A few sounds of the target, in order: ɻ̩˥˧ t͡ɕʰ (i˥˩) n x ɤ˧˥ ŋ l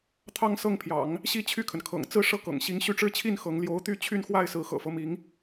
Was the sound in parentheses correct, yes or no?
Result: yes